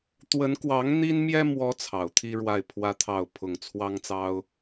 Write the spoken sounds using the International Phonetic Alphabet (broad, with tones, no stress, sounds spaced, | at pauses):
t̪ w ə˧˥ n k w ɑ˧˥ ŋ n̪ i˥ n m j ɛ˥ m w ɔ˧˥ t͡sʰ ɑ˨˩ ʊ̯ t̪ʰ i˥ ɻ w a˥˩ ɪ̯ pʰ w ä˥ t̪ʰ ɑ˥˩ ʊ̯ pʰ ʊ˨˩ ŋ t͡sʰ w ɑ˥ ŋ t͡s ɑ˥ ʊ̯